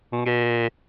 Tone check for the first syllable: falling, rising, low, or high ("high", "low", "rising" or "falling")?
high